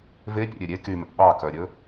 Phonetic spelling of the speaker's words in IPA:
vepʲɛ̰ɾʲø ɾʲe kymɛ̰ ɓɑkœɾʲɵ

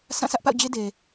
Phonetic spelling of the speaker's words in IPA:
sʰã˦˨sʰä˦ʔpa̰˦˨ʊ̯d͡ʑe˦ de˨

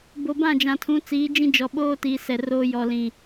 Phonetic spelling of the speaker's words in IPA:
bo˨bã˦˨d͡ʒã˨tʰũ˨˦ t͡siː˨˦d͡ʒĩ˦d͡ʒɔ˨ ɓoː˦tiː˨ sɛ˨roː˦ jɔ˨ lĩ˨

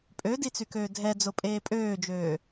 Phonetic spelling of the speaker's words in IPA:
pʼødit͡sykøː dʱɛd͡zopʼeː pʼøːd͡ʒøː

